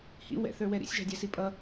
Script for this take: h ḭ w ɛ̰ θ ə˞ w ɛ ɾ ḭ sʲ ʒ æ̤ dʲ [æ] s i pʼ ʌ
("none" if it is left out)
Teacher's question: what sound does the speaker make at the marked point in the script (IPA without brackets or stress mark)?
æ